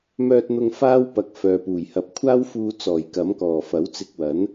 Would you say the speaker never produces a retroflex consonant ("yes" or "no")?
yes